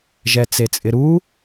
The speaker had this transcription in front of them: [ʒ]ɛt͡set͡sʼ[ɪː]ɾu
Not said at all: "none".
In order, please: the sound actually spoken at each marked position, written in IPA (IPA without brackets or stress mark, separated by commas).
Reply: ʒ, ɪ